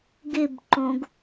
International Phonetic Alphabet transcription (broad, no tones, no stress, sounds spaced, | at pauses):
ɡ ɪ b ǃ õ ɡ